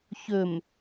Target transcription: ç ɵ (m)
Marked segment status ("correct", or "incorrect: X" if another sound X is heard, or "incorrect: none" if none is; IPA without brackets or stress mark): correct